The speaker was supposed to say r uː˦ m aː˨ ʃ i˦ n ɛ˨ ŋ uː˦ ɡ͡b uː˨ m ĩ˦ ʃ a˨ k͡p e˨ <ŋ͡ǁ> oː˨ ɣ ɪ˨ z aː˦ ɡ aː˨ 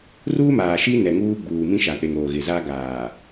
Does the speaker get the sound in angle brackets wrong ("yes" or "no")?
yes